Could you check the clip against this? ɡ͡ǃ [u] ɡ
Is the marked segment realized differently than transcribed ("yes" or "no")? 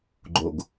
yes